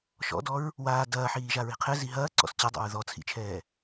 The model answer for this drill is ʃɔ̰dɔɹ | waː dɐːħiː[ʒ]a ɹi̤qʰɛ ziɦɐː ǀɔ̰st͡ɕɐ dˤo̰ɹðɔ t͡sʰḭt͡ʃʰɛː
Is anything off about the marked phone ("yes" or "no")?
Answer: no